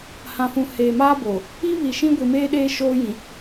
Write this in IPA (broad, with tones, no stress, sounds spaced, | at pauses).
h ã˨ f ũ˨ h eː˨ m aː˦ b o˨ | i˦ β i˨ ʃ ĩ˦ ɡʷ i˨ m eː˦ ɗ eː˦ ʃ oː˦ j ĩ˨